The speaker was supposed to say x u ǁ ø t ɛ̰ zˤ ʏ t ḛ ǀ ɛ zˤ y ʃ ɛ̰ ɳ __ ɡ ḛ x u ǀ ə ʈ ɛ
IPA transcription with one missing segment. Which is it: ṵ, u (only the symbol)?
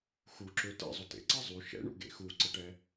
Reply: ṵ